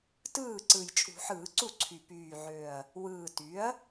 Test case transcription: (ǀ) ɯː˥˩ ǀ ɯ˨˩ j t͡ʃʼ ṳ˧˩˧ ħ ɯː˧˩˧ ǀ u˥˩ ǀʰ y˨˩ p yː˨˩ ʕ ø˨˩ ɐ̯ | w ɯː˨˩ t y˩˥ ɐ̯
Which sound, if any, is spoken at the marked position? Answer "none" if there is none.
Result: t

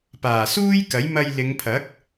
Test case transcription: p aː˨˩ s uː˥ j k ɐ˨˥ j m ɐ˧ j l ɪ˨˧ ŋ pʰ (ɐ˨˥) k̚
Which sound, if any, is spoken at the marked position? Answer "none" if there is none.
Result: ɐ˨˥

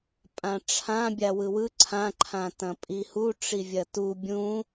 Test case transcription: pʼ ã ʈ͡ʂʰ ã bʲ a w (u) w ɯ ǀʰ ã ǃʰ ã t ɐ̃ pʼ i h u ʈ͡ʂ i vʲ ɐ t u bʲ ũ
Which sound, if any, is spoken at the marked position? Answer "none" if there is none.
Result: ɯ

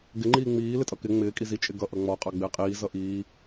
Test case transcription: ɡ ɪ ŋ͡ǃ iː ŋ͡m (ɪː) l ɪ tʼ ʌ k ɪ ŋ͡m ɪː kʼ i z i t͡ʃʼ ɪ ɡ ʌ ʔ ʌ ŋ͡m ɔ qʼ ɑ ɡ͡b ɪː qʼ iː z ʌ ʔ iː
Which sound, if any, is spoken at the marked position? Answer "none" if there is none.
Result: iː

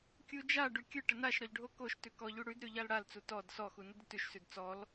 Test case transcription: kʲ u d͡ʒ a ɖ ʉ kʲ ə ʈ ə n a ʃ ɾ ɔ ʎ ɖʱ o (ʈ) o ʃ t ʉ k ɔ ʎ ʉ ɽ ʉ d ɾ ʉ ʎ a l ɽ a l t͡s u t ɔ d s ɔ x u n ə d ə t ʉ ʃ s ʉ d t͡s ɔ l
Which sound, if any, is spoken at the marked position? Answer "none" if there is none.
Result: k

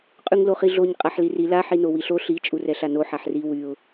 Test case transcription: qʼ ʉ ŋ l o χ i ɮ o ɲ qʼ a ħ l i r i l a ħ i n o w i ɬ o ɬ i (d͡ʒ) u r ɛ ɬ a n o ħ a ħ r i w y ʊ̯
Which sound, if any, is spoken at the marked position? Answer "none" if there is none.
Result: t͡ʃʼ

